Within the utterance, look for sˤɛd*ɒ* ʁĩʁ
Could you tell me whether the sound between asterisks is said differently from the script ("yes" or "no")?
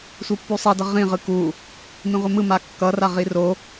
yes